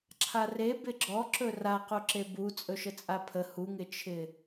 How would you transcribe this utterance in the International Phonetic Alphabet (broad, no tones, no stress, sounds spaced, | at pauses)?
ǁʰ a r e b ɪ ɡ͡ǁ ɔ ǁ ɵ r a q u ǁ e b u t͡sʼ ɵ ʃ ə t͡sʼ a pʰ ə h u ŋ ɪ t͡ʃʰ ɪ